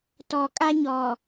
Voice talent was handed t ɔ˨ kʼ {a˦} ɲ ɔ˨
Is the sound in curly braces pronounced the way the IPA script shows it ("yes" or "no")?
yes